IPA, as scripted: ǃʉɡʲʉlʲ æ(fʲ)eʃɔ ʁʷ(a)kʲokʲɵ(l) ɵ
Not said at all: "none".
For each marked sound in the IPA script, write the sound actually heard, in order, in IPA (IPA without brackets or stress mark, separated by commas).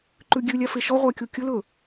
f, æ, l